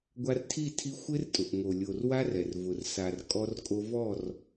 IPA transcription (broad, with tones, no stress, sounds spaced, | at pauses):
ɡʷ a˧ r tʰ i˦˨ tʰ i˧ xʷ ɪ˦ r tʼ ʊ˨ ʔ ŋ o˨ lʲ o˨ r w a˦ r ɛ˨ r v ʊ˨ r s a˨ r kʼ ɔ˧ r kʼ o˧ v ɔ˦˨ r